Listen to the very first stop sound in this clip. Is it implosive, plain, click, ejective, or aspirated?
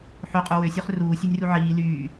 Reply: ejective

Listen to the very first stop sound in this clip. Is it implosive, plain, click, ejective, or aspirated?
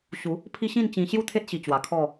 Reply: aspirated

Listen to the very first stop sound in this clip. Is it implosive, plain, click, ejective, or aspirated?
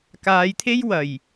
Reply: plain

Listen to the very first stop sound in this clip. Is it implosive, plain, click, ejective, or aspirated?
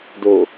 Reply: plain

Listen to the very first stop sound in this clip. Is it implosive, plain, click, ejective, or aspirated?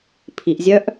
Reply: aspirated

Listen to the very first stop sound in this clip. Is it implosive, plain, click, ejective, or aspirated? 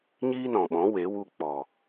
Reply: implosive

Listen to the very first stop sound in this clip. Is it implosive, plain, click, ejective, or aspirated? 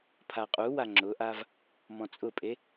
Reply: aspirated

